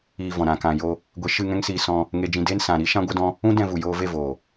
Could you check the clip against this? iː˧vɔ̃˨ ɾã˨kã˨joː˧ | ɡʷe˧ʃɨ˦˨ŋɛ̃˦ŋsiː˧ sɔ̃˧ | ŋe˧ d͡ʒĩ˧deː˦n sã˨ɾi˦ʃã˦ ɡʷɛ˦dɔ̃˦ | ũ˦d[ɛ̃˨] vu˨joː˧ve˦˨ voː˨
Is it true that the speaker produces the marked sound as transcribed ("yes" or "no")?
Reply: no